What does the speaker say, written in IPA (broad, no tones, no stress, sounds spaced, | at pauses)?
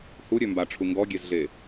h u ɾʲ ø m b a ʈ͡ʂʰ u ŋ ɡ ɔ ɡʲ e z ɮ e